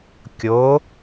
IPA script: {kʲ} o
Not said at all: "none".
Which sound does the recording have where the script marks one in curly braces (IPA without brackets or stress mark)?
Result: kʲ